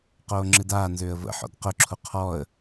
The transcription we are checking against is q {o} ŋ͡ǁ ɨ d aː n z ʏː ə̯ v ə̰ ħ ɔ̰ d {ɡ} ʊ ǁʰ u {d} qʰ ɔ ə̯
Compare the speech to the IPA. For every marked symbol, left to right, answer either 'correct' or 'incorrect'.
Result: incorrect: oː, incorrect: q, incorrect: none

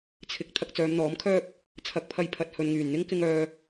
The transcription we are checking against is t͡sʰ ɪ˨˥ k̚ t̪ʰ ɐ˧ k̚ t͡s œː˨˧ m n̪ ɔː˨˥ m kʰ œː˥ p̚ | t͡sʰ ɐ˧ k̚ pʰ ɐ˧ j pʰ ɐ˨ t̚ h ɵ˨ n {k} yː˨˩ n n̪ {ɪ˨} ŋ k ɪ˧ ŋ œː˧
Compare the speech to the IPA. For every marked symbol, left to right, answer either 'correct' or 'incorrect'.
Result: incorrect: ŋ, incorrect: ɪ˥

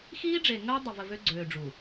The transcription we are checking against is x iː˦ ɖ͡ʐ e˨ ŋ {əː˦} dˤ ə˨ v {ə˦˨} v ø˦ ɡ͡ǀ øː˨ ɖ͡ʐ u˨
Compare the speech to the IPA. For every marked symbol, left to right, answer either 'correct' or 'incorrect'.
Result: correct, incorrect: ə˨

